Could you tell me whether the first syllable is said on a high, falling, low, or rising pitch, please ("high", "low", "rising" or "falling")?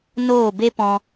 falling